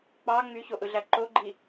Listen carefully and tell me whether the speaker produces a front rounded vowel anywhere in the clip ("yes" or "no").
yes